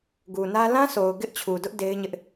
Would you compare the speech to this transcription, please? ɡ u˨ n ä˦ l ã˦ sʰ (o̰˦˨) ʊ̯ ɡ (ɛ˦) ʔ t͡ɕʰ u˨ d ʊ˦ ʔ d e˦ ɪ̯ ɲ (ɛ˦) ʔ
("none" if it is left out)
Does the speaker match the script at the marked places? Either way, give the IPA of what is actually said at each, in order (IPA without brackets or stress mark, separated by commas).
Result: o˨, ɪ˦, ɪ˦